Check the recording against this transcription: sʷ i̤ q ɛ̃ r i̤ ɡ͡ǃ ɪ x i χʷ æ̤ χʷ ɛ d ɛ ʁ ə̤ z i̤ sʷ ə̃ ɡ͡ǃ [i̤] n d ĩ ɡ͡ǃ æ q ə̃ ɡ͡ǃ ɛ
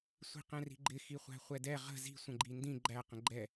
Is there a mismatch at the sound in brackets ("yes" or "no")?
yes